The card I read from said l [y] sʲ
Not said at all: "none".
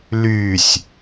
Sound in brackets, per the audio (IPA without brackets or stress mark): y